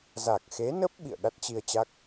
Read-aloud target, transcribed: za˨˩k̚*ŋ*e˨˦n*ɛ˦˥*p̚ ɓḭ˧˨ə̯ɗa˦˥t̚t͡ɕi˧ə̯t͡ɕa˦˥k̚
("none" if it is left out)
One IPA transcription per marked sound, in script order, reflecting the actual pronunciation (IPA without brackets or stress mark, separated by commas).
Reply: x, ə˦˥